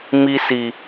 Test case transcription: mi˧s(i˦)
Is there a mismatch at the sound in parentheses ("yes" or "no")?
yes